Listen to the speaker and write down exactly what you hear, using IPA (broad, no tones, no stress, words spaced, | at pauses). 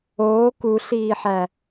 oː kuɬiːħæ